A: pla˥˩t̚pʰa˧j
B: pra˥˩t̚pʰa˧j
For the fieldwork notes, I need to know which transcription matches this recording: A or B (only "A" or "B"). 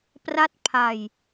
B